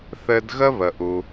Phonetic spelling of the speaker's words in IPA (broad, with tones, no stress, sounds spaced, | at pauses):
θ ɘ˧ d ɣ ə˥ β ə˩ ʔ u˩